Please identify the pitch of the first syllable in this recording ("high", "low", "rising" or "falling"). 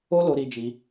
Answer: high